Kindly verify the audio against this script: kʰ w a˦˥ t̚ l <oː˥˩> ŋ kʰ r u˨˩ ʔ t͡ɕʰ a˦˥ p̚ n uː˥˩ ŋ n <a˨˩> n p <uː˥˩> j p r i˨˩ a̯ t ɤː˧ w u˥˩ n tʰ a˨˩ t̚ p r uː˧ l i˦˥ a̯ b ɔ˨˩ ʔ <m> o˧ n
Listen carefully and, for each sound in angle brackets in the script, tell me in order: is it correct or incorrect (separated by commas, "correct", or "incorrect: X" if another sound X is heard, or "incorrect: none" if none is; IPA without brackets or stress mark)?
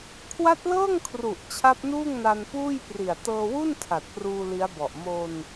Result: incorrect: ɤː˥˩, incorrect: a˧, correct, correct